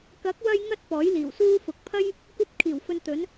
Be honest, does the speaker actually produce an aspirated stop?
yes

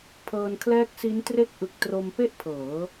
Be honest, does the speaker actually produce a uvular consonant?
no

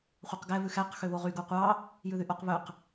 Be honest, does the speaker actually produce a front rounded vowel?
yes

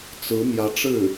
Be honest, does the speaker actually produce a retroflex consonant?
yes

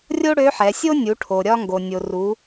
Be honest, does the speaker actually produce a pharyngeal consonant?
yes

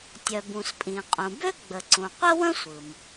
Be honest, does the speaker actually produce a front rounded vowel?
yes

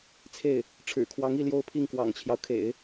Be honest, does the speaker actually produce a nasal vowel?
no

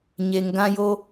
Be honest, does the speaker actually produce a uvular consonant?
no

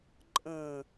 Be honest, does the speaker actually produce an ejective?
yes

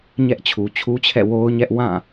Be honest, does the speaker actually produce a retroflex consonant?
no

